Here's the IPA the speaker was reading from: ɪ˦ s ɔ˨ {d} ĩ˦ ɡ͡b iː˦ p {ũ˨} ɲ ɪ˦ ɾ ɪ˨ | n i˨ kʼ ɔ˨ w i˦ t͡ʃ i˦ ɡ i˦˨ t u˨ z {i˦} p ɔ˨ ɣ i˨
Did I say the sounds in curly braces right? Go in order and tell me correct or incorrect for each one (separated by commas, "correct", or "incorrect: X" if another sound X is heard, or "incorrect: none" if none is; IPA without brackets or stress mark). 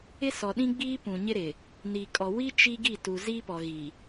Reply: incorrect: ɗ, correct, correct